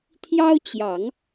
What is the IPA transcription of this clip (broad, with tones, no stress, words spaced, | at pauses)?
t̪ʰjɑ˥ʊ̯t͡ɕjɑ˨˩˦ŋ